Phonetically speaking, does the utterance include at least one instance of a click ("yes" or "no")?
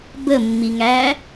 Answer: no